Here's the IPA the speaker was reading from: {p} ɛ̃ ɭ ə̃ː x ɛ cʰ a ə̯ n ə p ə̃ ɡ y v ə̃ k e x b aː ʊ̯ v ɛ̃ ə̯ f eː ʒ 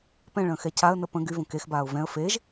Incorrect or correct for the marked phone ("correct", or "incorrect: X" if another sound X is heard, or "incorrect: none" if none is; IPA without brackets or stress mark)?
correct